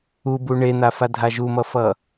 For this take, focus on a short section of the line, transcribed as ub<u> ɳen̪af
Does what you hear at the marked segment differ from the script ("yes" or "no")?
no